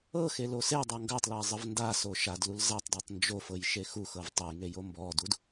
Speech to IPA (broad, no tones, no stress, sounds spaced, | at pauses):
ɤ x e l o s e dˤ o ŋ ɡ a tˤ l a zˤ ɤ v n d a s o ʃ a d l u l z a tˤ d ɤ tˤ n d͡ʒ o f ɤ j ʃ e x u x ɤ v tˤ ɤ j ŋ e j o m b ɔ d u d